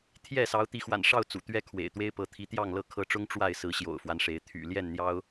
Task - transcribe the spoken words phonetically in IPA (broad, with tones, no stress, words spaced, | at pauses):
t̪ʰjɛ˥˨ sɑ˨˦ʊ̯t̪i˨˦xwa̰˨˩nʂɑ˥˨ʊ̯ t͡sṵ˨˩t̪ɥɛ˦ kʰwḛ˨˩ɪ̯t̪we˦ɪ̯pɤ˨˦ t̪ʰi˨˦t̪jɑ˥˨ŋlɤ˥˨ kʰɤ˨˦ʈ͡ʂʊ˦ŋ ʈ͡ʂwa˥˨ɪ̯sɹ̩˨˦ ɕjo̰˨˩ʊ̯fwa˦nʂe˨˦ɪ̯ t̪ʰy̰˨˩ ljɛ˥˨nn̪jɑ˦ʊ̯